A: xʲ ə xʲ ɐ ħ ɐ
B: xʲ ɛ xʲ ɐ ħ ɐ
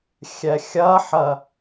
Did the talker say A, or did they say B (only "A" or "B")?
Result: B